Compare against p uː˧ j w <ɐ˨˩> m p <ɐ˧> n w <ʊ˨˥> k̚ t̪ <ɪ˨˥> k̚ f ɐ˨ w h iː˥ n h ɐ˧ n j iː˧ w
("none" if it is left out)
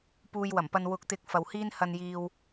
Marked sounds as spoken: ɐ˨˩, ɐ˧, ʊ˨˥, ɪ˨˥

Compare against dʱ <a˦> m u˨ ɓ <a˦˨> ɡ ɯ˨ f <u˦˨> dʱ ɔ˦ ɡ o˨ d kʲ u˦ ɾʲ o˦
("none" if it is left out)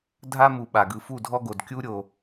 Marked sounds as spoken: a˦, a˨, u˦˨

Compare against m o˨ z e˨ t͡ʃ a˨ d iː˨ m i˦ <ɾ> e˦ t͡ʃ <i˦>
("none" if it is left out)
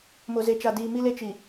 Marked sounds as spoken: l, i˨

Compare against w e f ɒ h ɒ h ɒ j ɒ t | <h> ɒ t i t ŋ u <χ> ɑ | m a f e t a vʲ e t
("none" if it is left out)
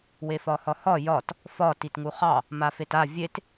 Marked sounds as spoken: f, χ

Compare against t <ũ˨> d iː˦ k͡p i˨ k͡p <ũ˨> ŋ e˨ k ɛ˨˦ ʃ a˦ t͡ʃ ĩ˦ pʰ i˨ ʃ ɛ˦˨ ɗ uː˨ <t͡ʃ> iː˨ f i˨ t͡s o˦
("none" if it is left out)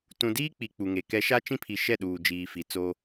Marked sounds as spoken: ũ˨, u˨, d͡ʒ

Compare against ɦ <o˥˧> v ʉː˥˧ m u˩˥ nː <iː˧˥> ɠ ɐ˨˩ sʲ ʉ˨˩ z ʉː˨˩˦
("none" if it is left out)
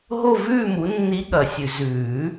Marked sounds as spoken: o˥˧, i˧˥

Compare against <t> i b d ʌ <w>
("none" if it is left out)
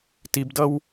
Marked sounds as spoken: t, w

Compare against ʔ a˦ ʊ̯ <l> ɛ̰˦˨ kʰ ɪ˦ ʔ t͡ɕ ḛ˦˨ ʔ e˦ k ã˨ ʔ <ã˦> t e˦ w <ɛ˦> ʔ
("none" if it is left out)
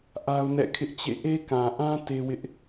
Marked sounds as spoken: n, ã˦, ɪ˦

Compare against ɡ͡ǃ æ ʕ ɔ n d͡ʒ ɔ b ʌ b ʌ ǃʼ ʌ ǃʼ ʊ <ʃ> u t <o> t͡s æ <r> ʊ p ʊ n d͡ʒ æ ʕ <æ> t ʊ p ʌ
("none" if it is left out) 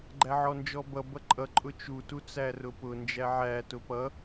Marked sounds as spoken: t͡ʃ, u, r, æ

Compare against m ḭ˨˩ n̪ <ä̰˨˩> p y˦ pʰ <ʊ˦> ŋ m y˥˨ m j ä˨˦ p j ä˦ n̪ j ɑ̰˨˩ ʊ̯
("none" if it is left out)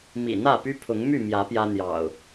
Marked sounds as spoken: ä˥˨, ʊ˨˦

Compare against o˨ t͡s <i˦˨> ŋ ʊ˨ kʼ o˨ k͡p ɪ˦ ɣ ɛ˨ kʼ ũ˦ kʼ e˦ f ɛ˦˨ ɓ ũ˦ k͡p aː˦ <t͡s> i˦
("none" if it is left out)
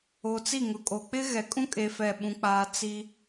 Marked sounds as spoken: i˦˨, t͡s

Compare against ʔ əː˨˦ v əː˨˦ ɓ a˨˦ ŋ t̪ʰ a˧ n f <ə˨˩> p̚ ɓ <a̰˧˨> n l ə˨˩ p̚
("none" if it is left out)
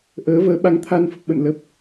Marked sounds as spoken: ə˨˩, ə̰˧˨

